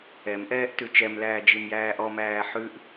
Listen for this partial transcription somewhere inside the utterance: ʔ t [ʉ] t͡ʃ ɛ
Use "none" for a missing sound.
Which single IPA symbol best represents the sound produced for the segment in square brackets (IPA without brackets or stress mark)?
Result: ʉ